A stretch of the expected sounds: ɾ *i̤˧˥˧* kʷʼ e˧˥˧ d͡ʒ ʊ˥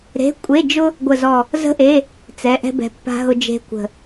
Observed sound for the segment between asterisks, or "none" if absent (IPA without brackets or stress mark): e̤˧˥˧